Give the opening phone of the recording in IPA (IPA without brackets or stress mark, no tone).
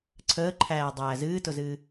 ǀʰ